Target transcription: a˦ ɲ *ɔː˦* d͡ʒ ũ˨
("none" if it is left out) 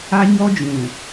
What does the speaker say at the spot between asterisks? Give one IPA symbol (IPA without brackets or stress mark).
ɔ˦